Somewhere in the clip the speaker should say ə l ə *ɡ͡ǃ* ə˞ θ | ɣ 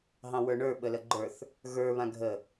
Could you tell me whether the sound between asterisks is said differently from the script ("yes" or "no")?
no